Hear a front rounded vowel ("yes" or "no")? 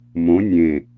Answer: no